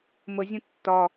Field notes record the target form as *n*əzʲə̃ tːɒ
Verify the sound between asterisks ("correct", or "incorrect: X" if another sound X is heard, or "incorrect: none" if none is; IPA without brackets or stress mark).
incorrect: m